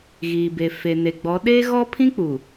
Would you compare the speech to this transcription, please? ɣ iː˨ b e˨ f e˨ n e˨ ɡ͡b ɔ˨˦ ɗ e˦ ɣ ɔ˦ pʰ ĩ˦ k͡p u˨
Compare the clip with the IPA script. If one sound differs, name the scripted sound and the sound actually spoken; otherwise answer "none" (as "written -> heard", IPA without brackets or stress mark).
none